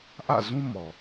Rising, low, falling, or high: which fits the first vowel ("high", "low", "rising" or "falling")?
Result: falling